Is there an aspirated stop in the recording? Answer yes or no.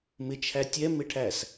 yes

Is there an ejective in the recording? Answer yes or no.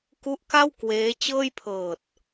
no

